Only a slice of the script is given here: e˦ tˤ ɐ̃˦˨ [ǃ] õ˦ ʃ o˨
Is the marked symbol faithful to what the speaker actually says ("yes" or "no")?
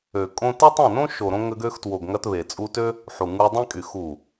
no